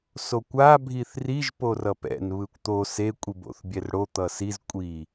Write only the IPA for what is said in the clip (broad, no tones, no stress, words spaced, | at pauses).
sokʷa bʱiθriʒ porʌpɛ̰n βɯkʷt̪o se kʷʼibo̰θbʲɛrɽo t̪ʌsiz kʷʼi